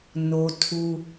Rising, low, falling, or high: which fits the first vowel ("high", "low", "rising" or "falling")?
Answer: high